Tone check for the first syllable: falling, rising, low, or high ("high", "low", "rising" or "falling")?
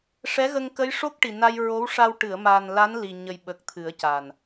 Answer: rising